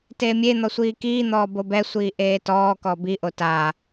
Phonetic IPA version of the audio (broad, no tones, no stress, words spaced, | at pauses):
teːmʲe n̪ɔsʷiːkiː n̪ɔːbobɛ sʷiːʔeːtɔː kɔbi ʔotaː